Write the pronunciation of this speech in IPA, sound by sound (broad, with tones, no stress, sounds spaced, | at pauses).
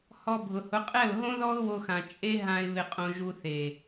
h ɔ˧ bʱ ʊ˨ h ʊ˨˦ qʼ ɛ˦˨ ʊ̯ ɦ õ˦ ð ɔ˦ ʊ̯ w o˧ x ã˨ t͡ʃʼ e˦ ɦ ã˧ ɪ̯ β ɪ˧ qʼ õ˧ ʒ u˧ θ e˨